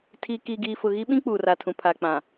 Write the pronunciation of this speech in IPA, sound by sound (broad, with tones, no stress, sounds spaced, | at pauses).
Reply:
tʰ iː˨ k iː˨ ɡ iː˨ f ʊ˨ ɣ i˦ ɓ ĩ˦ k͡p uː˨ r a˨ tʰ ũ˨ pʰ a˨ k͡p ã˨